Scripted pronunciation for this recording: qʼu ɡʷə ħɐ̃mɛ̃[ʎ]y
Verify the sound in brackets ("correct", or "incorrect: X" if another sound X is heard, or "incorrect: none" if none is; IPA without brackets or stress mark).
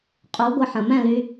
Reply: incorrect: l